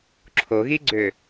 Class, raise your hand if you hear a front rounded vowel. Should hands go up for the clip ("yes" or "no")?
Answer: yes